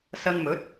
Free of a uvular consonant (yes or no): yes